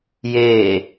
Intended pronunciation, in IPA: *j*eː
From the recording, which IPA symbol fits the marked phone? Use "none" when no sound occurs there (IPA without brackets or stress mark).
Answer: j